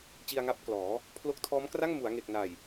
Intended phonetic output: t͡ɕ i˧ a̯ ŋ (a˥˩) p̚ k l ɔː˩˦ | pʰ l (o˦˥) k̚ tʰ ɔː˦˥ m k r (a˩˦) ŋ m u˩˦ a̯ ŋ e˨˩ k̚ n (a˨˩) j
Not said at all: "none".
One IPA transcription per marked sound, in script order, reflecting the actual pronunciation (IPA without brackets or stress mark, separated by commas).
a˦˥, o˥˩, a˥˩, a˨˩